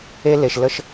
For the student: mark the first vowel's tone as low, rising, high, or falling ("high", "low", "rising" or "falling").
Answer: high